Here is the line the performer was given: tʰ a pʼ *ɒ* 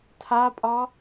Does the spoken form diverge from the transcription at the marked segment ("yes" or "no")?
no